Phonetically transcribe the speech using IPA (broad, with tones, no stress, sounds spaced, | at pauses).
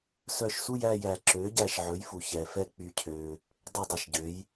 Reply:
s œ˧˩ ʃ s u˥˨ j æ˥˨ j æ˨˩˦ ǁ ø˩˥ ɟ æ˧˩ ʃ ʕ ɵ˩˥ j f u˩ ç ɛ˩ f ɛ˥˨ k͡p y˧˩ cʰ ø˩ | dˤ ɛ˥˨ dˤ ɑ˧˩ ʃ ɟ ø˩˥ j